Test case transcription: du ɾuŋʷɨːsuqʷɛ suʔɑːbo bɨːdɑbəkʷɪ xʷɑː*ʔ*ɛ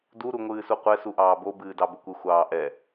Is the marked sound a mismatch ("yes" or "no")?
no